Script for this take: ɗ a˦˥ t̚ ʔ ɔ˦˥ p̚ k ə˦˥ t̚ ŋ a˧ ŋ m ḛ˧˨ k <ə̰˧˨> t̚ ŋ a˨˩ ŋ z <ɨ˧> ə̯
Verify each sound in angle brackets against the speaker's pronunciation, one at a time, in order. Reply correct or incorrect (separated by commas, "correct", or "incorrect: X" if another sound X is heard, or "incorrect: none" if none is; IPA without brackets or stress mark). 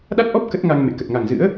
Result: incorrect: ə˨˩, incorrect: ɨ̰˧˥